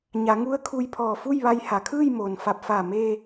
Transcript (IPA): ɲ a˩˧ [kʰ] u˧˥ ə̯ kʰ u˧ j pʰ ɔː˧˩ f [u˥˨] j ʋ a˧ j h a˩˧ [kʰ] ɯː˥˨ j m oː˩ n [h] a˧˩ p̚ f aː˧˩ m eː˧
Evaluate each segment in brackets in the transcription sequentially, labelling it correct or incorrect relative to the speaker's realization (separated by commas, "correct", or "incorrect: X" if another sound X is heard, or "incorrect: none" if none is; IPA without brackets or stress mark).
incorrect: ŋ, correct, correct, incorrect: f